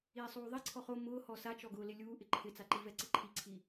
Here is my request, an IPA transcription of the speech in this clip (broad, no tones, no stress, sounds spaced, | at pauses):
iː sˤ uː ðˤ i ǀʰ ɔ χ o m ʊː h ɔ s a t͡ʃ ɔ ɡ ʊː l ɪ lʲ uː ʔ ɪ ǃʰ ɪ t͡s a ǃ i v ɛ ǀ ɪ ǃʰ i ǀʰ i